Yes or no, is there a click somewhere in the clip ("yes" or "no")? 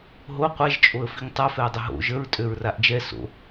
no